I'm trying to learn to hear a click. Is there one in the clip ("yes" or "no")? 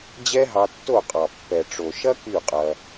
no